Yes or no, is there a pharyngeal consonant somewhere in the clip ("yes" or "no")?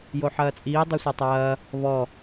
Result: yes